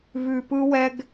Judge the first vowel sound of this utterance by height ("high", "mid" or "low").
high